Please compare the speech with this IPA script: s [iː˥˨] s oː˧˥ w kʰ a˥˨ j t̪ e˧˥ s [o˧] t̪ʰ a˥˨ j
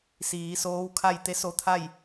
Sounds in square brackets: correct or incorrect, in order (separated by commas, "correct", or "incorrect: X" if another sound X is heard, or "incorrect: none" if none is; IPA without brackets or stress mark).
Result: incorrect: iː˩˧, correct